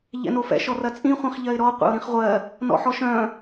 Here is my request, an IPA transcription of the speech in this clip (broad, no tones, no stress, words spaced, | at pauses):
ʎɛ̰nofɛ̰ ʃɔrɐt͡sʼĩ χʷĩχʎɜɪ̯ɾɔ qʷḛʊ̯ɾĩχʁʷɜ | nɔ̰ħɔʃœ̃